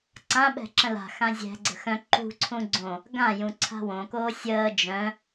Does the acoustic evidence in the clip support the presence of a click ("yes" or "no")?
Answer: yes